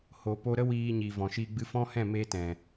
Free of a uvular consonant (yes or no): yes